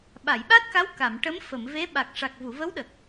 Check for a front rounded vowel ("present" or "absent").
absent